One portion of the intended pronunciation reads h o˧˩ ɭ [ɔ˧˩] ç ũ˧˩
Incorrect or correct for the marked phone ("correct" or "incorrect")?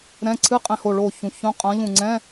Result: incorrect